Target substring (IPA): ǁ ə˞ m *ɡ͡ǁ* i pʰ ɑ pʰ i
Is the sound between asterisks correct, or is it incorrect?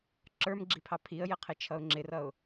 correct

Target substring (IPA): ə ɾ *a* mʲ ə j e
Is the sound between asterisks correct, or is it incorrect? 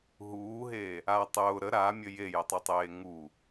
correct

